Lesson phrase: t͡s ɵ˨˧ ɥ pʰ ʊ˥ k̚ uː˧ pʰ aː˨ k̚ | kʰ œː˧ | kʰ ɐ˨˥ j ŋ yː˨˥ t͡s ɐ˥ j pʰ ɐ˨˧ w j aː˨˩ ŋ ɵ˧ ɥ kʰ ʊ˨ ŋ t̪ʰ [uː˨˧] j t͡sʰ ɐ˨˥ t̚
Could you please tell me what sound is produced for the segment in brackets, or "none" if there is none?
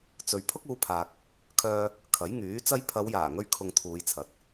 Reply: uː˨˧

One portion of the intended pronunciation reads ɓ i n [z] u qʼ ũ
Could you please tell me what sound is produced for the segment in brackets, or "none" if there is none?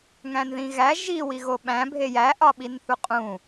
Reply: θ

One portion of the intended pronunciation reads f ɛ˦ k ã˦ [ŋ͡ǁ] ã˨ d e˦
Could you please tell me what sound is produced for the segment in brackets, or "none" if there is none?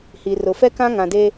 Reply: ŋ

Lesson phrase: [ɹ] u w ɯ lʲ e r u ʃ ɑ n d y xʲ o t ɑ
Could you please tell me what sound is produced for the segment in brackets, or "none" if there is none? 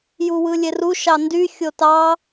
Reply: j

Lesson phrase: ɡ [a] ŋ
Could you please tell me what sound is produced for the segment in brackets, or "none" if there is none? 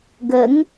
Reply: ə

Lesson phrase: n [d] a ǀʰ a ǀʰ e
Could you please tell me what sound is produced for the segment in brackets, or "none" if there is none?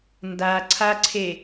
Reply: d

